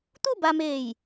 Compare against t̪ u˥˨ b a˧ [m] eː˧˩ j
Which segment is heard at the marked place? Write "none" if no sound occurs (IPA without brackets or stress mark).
m